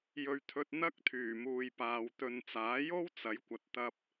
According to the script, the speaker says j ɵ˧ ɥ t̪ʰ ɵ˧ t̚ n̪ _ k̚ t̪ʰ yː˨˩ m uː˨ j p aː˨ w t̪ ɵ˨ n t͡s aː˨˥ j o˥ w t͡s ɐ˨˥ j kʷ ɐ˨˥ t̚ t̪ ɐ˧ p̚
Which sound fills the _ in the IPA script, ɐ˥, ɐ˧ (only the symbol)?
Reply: ɐ˥